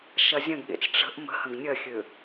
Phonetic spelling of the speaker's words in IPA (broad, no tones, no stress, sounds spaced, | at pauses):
ʃ ɐ zʲ ɐ̃ ɡ ɠ ḛ t͡s ʈ͡ʂ ə̤ ʔ m ə̤ h ə̃ ɡ nʲ ɐ xʲ ø